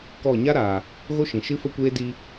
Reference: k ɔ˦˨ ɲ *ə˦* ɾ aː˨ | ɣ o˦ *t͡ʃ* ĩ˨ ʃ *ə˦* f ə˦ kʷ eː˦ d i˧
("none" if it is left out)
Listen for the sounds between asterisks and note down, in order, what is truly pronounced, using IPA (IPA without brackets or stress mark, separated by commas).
a˦, ʃ, ɨ˦